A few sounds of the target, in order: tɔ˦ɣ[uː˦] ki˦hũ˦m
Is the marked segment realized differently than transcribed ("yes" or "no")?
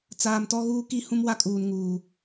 no